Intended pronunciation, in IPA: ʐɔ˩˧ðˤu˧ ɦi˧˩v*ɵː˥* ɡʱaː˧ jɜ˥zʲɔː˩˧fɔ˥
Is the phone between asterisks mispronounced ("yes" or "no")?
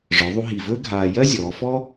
no